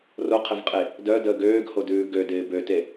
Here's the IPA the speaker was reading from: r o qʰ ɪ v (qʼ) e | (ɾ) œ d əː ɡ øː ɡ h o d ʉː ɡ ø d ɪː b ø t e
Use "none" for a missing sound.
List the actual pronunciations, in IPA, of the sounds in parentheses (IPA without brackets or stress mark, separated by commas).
qʼ, d